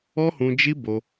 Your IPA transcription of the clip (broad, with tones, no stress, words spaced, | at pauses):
ɔ˦hũ˧d͡ʒi˦ bo˧